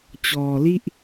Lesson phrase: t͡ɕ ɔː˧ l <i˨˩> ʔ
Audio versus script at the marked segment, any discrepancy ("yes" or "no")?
yes